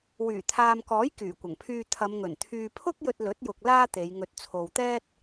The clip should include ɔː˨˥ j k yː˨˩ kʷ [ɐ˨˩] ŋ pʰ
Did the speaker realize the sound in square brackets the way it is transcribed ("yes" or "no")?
yes